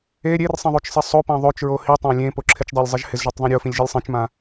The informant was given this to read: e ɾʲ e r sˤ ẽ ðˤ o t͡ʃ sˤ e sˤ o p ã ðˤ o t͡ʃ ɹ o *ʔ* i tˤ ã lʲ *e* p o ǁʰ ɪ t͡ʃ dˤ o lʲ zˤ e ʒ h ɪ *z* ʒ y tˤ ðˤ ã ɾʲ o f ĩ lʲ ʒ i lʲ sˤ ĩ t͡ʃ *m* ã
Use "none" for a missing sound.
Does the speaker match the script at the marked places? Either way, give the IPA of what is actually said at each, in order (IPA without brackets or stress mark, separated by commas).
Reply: h, ẽ, z, m